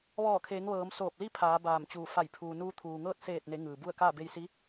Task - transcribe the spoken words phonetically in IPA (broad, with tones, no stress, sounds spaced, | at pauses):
ʋ ɔː˧˩ kʰ eː˩˧ ŋ ʋ ɤː˩˧ m s oː˧˩ p̚ l i˥˨ pʰ aː˩˧ b aː˧˩ m t͡ɕ uː˧˩ f a˧˩ j pʰ uː˩ n uː˧ t̪ʰ uː˩ ŋ ɤː˥˨ t̚ s eː˧˩ t̚ n e˩˧ ŋ ɯː˩ b u˥˨ ə̯ k aː˥˨ b e˧ j s i˧˥